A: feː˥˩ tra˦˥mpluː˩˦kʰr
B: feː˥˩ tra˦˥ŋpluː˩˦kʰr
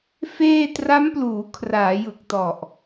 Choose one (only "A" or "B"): A